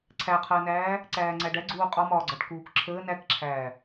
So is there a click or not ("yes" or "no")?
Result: yes